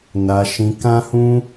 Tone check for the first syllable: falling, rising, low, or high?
low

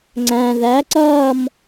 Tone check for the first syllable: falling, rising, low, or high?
low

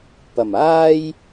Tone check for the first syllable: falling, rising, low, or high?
low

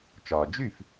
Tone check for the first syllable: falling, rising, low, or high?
low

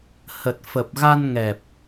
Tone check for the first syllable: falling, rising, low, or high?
low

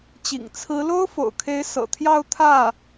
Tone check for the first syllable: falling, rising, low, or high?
low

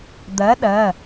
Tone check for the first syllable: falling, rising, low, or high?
rising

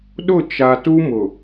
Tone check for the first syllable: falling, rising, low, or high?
falling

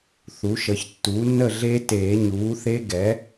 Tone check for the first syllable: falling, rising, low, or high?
rising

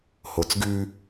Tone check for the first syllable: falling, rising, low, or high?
low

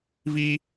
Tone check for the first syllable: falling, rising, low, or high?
high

